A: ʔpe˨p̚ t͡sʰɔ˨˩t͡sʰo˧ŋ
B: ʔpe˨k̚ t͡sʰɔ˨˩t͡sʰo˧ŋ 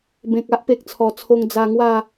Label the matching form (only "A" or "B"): B